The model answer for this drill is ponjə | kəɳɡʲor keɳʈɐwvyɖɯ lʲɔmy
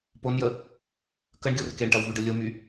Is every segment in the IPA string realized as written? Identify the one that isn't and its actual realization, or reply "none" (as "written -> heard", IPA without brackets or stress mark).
ɔ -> o